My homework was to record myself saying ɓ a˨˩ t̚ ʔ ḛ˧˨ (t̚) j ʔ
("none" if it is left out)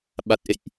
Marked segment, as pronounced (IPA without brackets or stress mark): none